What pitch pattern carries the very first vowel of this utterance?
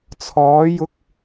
rising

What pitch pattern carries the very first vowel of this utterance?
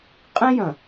high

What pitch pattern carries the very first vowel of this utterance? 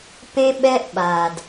high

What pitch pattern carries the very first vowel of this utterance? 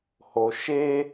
low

